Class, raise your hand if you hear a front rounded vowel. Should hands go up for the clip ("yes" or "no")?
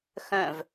yes